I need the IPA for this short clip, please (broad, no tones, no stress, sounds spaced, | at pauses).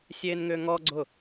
sʲ eː n ŋ ʏː ŋ ɔ ɡ͡ǀ ʊ